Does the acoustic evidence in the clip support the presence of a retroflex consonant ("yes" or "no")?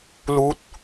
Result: no